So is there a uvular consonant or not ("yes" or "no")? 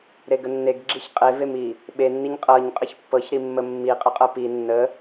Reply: yes